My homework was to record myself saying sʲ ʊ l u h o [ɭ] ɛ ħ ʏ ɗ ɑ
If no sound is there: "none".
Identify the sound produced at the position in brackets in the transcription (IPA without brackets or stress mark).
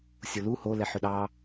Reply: l